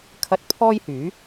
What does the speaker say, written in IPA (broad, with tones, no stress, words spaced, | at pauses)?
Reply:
kʰɐ˧t̚ pʰɔː˥jhyː˨˥